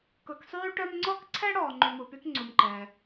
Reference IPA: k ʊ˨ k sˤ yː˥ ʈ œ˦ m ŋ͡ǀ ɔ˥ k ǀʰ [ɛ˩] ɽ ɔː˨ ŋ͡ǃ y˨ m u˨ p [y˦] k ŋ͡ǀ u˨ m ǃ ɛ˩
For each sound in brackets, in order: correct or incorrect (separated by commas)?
incorrect, correct